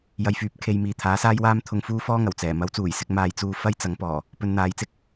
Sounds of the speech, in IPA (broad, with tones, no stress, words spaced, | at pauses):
jɐ˨jfyː˨˥p̚ kʰe˨˧jmiː˨t̪ʰaː˨˥saː˥j waː˥mt̪ʰʊ˧ŋfuː˥ fɔː˥ŋɐ˨˩w t͡sɛː˨˩ mɐ˨˥wt͡suː˨˩jsɪ˧k̚ maː˧j t͡suː˧ fɐ˥jt͡sɐ˨˥ŋpɔː˨˩ | pɵ˨˧nn̪aː˨˥jt͡sɪ˧k̚